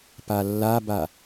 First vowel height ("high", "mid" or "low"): low